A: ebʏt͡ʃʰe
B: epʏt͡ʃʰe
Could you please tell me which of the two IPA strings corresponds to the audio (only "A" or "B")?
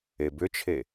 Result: A